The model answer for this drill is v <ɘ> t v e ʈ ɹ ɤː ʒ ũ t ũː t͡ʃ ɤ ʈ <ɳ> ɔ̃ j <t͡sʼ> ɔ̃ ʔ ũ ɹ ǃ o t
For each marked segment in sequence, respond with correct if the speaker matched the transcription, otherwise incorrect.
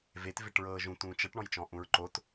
incorrect: e, correct, incorrect: t͡ʃ

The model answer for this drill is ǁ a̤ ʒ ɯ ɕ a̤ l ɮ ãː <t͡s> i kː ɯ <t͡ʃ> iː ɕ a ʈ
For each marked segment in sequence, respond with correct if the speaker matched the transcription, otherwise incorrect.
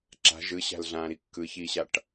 incorrect: ɾ, incorrect: ç

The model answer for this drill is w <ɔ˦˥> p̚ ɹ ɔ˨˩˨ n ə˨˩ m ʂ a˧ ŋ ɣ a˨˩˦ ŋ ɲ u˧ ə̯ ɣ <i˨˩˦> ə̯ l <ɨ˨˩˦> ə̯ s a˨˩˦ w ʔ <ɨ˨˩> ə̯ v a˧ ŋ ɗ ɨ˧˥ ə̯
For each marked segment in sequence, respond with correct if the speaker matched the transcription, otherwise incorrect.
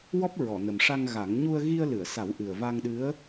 correct, incorrect: i˧, incorrect: ɨ˨˩˨, correct

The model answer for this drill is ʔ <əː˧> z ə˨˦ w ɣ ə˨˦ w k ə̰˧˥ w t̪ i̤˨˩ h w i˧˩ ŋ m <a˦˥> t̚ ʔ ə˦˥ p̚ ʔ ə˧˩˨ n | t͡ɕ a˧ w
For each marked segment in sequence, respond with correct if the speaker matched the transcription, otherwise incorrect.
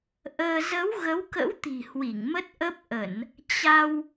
correct, incorrect: ə˦˥

